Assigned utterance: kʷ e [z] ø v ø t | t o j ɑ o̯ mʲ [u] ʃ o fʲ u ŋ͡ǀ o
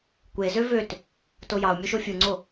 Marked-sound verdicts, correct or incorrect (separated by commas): correct, incorrect